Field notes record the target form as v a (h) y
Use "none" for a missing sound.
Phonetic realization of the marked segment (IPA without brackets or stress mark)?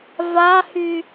h